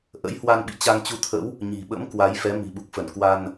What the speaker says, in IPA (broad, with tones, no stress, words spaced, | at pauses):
ʔə̰˧˥jhwa˧nɓḭ˧˨ t͡ɕa˧ŋt͡ɕu˧t̪ʰə̰˧˥w | ɲi̤˨˩ɓə̰˧˥m kwa˨˦jfɛ˨˦ mi̤˨˩ɓu˨˩k̚fə˧˩n kwa˧n